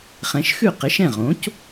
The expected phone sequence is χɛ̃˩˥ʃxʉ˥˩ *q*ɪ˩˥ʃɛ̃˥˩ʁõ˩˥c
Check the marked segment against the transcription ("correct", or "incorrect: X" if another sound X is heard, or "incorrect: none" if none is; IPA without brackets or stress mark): correct